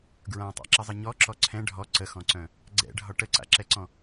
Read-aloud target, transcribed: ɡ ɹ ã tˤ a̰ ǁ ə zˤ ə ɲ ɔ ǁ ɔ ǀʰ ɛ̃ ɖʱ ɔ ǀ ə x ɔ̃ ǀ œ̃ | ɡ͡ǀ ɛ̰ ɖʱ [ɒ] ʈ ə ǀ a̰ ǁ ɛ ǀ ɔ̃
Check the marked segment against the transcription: correct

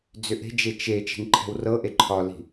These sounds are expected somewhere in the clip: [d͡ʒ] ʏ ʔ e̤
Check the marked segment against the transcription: incorrect: d͡z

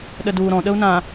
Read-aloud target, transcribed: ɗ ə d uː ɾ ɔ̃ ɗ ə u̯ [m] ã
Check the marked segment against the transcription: incorrect: n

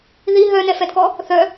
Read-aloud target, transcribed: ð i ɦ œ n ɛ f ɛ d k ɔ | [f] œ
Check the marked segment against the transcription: incorrect: θ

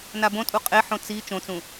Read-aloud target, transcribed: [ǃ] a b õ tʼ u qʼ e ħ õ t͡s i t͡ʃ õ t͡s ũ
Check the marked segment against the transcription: incorrect: n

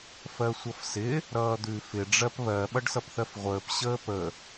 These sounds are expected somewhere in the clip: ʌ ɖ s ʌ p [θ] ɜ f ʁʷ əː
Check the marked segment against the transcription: correct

